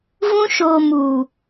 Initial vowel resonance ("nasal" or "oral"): nasal